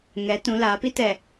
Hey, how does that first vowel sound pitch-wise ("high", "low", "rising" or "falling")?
rising